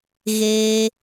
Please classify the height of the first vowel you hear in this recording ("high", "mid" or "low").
mid